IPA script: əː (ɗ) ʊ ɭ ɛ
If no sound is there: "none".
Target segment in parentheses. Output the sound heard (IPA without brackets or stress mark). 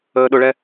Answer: ɗ